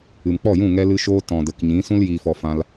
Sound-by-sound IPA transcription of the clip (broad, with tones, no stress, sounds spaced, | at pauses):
ɨ˨ m k͡p ɔ˦˨ j ũ˦˨ ŋ ɛ˦ l ɨ˦ ʃ oː˦ t ɔ̃˨ d ə˨ k ɲ ĩ˨˦ s ũ˦ l j iː˨ f ɔ˨ f ã˧ l